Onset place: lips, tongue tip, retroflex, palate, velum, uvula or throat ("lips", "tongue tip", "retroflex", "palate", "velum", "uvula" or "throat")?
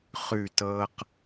uvula